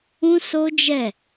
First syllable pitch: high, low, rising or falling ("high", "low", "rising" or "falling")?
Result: high